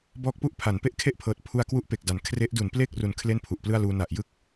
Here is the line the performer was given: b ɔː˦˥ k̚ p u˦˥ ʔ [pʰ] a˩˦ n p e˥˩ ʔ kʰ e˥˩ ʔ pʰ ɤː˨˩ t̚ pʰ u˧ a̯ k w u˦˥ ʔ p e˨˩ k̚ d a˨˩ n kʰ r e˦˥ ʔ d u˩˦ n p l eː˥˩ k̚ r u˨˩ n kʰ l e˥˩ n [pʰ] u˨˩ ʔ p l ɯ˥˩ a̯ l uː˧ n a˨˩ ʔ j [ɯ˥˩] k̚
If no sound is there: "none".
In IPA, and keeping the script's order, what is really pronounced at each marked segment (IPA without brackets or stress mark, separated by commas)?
pʰ, pʰ, ɯ˥˩